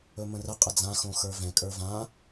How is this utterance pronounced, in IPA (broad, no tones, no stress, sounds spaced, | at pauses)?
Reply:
ɵ m ə̃ r ə qʼ ə d͡z ã x õ x ə˞ v ɛ̃ kʼ ə˞ v ã